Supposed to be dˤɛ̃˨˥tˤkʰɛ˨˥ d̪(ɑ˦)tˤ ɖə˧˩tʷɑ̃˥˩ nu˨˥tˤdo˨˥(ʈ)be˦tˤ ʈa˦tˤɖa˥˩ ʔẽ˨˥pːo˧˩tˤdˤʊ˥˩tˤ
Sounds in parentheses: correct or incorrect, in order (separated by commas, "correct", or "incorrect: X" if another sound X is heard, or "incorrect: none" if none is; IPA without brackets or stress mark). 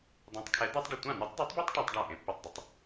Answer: correct, incorrect: tˤ